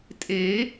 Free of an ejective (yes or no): no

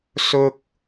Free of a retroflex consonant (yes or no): yes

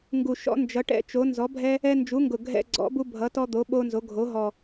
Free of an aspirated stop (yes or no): yes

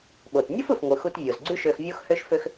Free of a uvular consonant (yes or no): yes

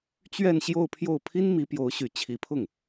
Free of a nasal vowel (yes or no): yes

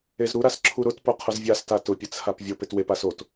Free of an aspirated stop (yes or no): no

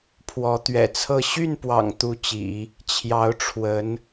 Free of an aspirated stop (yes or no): no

